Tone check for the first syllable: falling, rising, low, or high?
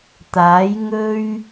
rising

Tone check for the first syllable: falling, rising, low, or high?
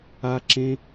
high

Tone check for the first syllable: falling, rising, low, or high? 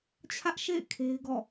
high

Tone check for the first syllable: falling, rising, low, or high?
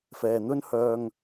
low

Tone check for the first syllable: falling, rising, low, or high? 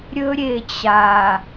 high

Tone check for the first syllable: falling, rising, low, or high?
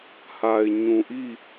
low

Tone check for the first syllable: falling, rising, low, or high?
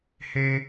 high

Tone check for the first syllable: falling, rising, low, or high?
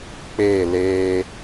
falling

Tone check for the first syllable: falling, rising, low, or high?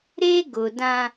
high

